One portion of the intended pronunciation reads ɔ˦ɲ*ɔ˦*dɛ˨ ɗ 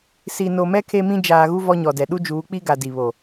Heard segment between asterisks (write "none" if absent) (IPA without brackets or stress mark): ɔ˨